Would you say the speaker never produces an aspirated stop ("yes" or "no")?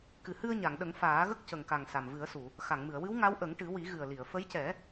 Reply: yes